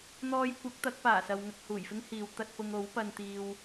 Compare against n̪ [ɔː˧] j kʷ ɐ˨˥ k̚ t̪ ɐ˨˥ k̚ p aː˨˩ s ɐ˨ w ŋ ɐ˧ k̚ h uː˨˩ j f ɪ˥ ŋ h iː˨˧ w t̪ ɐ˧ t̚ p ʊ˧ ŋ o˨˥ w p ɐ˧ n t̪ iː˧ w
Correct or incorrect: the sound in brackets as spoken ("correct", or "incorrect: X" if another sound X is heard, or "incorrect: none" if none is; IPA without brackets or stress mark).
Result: correct